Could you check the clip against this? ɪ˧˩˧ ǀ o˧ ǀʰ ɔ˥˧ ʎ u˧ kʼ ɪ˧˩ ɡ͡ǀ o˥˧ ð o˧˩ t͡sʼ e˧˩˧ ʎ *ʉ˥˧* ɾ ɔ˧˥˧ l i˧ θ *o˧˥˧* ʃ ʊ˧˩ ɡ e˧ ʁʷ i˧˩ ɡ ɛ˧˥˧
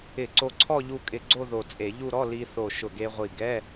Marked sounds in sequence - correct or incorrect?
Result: incorrect: u˥˧, incorrect: o˧˩

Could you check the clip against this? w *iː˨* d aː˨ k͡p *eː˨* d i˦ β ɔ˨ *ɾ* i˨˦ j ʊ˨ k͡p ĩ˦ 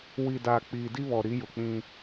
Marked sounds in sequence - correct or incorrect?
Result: incorrect: i˨, incorrect: iː˨, correct

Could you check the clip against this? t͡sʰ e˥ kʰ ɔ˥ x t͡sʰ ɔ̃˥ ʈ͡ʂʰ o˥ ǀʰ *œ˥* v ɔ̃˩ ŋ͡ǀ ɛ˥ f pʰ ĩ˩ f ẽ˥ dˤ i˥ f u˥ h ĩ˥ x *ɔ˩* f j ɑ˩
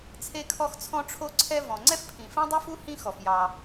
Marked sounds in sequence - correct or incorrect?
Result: incorrect: ɛ˥, correct

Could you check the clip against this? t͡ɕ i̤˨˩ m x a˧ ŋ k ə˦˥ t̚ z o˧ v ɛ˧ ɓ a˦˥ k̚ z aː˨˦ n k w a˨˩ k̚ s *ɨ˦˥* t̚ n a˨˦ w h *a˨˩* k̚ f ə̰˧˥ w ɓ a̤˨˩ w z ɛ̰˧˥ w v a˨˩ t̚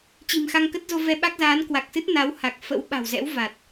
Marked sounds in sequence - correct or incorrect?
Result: correct, correct

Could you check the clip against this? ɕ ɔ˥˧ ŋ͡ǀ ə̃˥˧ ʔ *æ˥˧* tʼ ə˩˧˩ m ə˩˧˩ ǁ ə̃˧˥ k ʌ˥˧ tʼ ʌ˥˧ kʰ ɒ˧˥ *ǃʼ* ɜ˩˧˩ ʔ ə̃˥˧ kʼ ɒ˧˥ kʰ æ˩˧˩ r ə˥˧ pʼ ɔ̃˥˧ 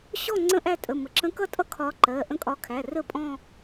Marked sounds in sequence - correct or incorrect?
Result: correct, incorrect: ǃ

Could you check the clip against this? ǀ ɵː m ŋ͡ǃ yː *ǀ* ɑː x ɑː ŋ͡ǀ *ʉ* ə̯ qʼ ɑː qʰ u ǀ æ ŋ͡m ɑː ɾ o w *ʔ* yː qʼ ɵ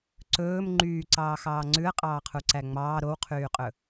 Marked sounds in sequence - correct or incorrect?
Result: correct, correct, incorrect: qʰ

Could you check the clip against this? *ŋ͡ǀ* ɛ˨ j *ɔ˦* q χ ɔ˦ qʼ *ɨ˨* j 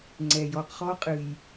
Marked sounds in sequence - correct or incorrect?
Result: correct, correct, correct

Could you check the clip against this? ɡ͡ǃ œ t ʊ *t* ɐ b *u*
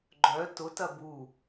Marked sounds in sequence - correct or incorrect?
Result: correct, correct

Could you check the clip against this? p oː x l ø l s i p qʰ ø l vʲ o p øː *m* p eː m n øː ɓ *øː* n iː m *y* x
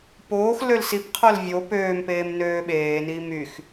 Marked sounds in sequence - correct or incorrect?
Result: correct, incorrect: eː, correct

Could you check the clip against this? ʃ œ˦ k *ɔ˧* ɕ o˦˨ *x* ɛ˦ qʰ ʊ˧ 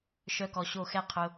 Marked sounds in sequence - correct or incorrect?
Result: correct, correct

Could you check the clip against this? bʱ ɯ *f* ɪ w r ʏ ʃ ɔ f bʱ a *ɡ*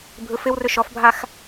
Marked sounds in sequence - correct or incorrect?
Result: correct, incorrect: x

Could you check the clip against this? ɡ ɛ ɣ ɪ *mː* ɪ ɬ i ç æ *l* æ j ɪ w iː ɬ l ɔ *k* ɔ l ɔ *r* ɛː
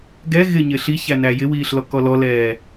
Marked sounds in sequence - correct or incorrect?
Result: incorrect: ɲ, incorrect: n, correct, incorrect: l

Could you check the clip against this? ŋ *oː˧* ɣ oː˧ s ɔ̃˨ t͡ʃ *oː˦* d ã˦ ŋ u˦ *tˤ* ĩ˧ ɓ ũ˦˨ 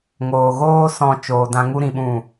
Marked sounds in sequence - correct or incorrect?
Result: correct, incorrect: oː˧, incorrect: ɾ

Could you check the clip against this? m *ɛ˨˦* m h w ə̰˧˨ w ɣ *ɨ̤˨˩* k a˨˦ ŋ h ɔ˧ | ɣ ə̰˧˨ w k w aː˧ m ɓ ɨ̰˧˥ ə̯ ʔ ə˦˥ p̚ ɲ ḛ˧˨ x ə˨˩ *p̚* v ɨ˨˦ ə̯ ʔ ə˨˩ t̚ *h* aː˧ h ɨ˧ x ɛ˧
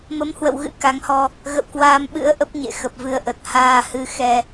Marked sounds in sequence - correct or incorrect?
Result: incorrect: ə˨˦, incorrect: ɨ̰˧˥, correct, correct

